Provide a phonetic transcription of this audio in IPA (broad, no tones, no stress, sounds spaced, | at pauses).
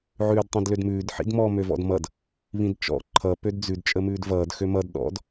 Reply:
ʕ ʉː d tˤ ĩ d l ø d m ʉː d ħ ḭ d m ɔ m ø v ɔ̰ d m ʌ d | β ĩ d t͡ʃ ɔ̰ ǃʰ ʌ p ø d d͡z ʉ d t͡ʃʼ ə m ʉː d v ʌː d x ø m ʌ d ɗ ɔ̰ d